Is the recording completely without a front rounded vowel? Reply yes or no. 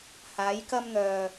no